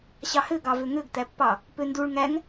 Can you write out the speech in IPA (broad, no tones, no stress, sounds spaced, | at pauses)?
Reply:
ɕ ɑ h ø ɡ ɑ v ø ŋ ø ɡ t̪ æ pː ɑ | p ø n d u ɭ ŋ æ ŋ